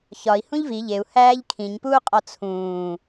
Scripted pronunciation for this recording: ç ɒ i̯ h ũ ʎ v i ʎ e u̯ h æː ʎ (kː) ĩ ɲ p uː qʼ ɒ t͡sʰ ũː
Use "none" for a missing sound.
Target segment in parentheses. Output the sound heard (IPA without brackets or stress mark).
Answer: kʰ